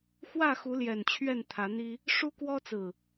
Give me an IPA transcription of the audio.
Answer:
x w ä˥˨ x u˨˦ l j ɛ˨˩ n t͡ɕʰ ɥ ɛ˥˨ n t̪ʰ ä˨˦ n̪ i˦ | ʂ u˦ k w ɔ˦ t͡s ɹ̩˨˩

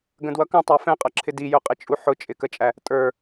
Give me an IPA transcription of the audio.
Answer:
ɡ ə̃ d w ʌ k ə̃ tˤ ɑ f ɛ̃ qʼ ʌ ǁʰ ɪ d i j ʊ qʼ ɪ t͡ʃʼ u ħ ʊ t͡ʃʼ ɪ k ə t͡ʃʼ æ | tʼ ə˞

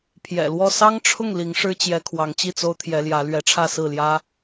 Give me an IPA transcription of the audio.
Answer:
pʰ j ɛ̰˨˩ l w ɔ˥˩ s ɑ˥ ŋ ʈ͡ʂʰ ʊ˥˩ ŋ l i˧˥ ŋ ʂ ɻ̩˥ t͡ɕ j ɛ˧˥ kʰ w ɑ˧˥ ŋ t͡ɕ i˥˩ t͡s o˥ ʊ̯ t̪ʰ j ɛ˧˥ l j ä˧˥ l ɥ ɛ˧˥ ʈ͡ʂʰ ä˥˧ s ɹ̩˥˩ l j ä˥

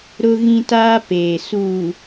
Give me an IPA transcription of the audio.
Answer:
ɾ ʊ˦ ɣ ĩ˦ t aː˦ p eː˨ s uː˨

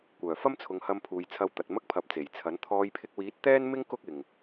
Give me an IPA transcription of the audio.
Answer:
kʷ œː˨˩ f ɐ˥ m t͡sʰ ʊ˨˧ ŋ h ɐ˧ m pʰ uː˨ j t͡sʰ ɐ˧ w t̪ ɐ˨ t̚ m ɐ˥ k̚ pʰ ɐ˨˥ p̚ t͡s e˨˩ j t͡sʰ ɐ˨˥ n t̪ʰ ɔː˧ j pʰ ɪ˧ k̚ w iː˨˥ t̚ t̪ ɛː˥ n m ɪ˥ ŋ k ʊ˥ k̚ ɪ˨ ŋ

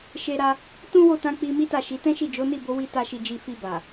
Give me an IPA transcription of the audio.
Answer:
ʃ e˧ ɾ a˧ | t ũ˦ w o˦˨ t ã˧ k͡p i˧ m i˦ t a˦˨ ʃ i˨˦ t ɛ̃˦ ʃ i˦˨ d͡ʒ o˨˦ n i˦˨ b o˧ w i˧ t a˦ ʃ i˧ d͡ʒ i˧ f i˧ b a˨

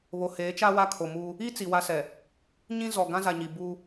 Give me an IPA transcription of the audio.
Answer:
β o˨ h eː˨˦ t͡ʃ a˦ w a˦ kʰ o˨ m uː˦ | i˦ t͡s i˨ w a˦ s ɛ˨ | ɲ ĩ˦ z ɔ˨ ɡ ã˦ z a˨ ɲ i˨ b uː˦

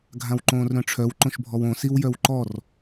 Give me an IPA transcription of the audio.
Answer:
ɡʱ ã w ǃ õː r ɾ œ̃ ʈ͡ʂʰ œ w ǃ õ ʃ bʱ ɔ w õ s i w j œ w ǃ ɔ r

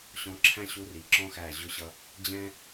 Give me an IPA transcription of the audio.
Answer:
ɕ ɔ̃˨˦ ǁʰ æ̃˦ ɕ u˧ r i˨ ǁ ɔ̃˦ x æ˦˨ ʑ ʊ˧ ɕ ʌ˧ | d͡ʑ ɛ̃˦

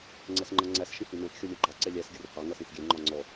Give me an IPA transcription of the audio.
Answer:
ŋ͡ǀ ɛ s ŋ͡ǃ ʌ ŋ͡ǀ æ s ʃ ĩ h i n ɛ̃ s xʲ ɔ lʲ ɜ ɡ͡ǃ ɑ ǀ ɛ lʲ æ s ɡʲ ʊ r h ɑ ŋ ʌ s ĩ s ɡʲ ɛ ŋ͡ǃ ɒ ŋ͡ǀ ɔ

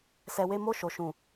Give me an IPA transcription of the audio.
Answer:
s ɛ˧ w e˦ m o˦ ʃ o˧ ʃ ũ˨

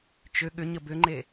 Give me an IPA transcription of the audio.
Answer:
t͡ʃ ʏ ɠ ʏ ɲ ə b ʏ ŋ͡ǃ e

